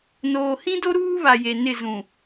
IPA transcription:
n oː˨ h ĩ˦ d o˦ ɾ uː˦ β a˨ j e˨ n ɪ˦˨ z ũ˨

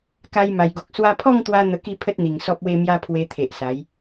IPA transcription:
k a˧ j m a˨˩ j ɡ o˨ k̚ s w a˧ pʰ ɔ˥˧ ŋ t̪ w a˧ n̪ ə˧ k i˥˧ pʰ ə˦ t̚ n̪ i˨˩ ŋ s ɔ˦ p̚ w e˦ m j a˦ pʰ w e˧ t̪ʰ e˨ ʔ s a˨˦ j

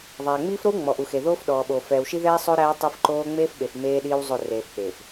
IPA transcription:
ðˤ æː˨ ŋ͡m iː˦ f ɾ o˦ w ŋ͡m ɔ˨ ʔ u˨ x e˨ ð oː˦ f ɗ ɔː˨ ɓ o˨ f ɛː˨ w ʃ i˦ ð ɛː˦ sˤ o˦ ɾ æː˦ tˤ e˦ f ǃ oː˦ ŋ͡m eː˦ f ɓ e˨ f m eː˦ ɗ iː˦ w zˤ o˦˨ r eː˨ f k͡p eː˨ f

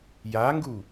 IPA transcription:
j a ŋ ɡ u

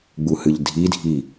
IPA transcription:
ɡ͡b u h ɨ ʎ dʱ i dʱ i

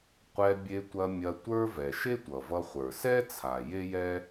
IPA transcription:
qʷ ɛ˧ bʲ e˧ tʷ ɐ˧ mʲ ɐ˧ tʷ ə˞˥ v ɛ˩ ʃ e˥ tʷ ʌ˩ v ʌ˧ χʷ ə˞˩ s ɛ˥ t͡sʰ a˩ j e˥ j ɛ˥

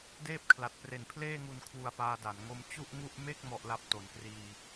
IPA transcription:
d eː˥˩ p̚ kʰ l a˨˩ t̚ p r e˨˩ n pʰ l eː˥˩ ŋ u˧ n kʰ w u˧ a̯ p aː˧ d a˩˦ n ŋ o˦˥ m t͡ɕ u˥˩ ʔ ŋ u˥˩ ʔ m e˥˩ k̚ m ɔ˥˩ ʔ l a˥˩ p̚ t o˩˦ n k r iː˧

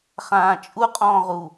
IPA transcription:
χ ãː t͡ʃʼ u qʼ ɔ̃ː ʁ u

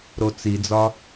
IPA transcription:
ɾ o t͡s i d͡z ɒ

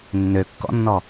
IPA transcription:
nː ø kː ɔ̰ nː ɔ

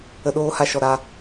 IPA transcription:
ə˧ ɗ oː˧ h a˧ ʃ ɔ˨ ɾ a˧

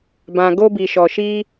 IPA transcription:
b ã˧ ɡ o˦ b i˧ ʃ ɔ˧ ʃ i˦

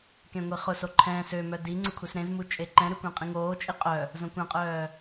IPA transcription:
k ẽ ŋʷ i χ ʊ s o ǃʰ ɛ̃ s ø m œ d i ŋ͡ǀ ʊ kʷʰ e s ɾ ẽ z m u t͡ʃʼ e ǃ ɛ̃ ɾ ʏ kʷ ɛ̃ qʼ ĩ ŋ oː t͡ʃʼ i qʼ œ | z õ kʷ ẽ qʼ œː

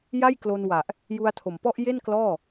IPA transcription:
j a˥˩ j k l o˧ n w a˨˩ ʔ | j u˧ a̯ tʰ o˨˩ m p ɔ˥˩ ʔ j e˥˩ n k l ɔː˥˩

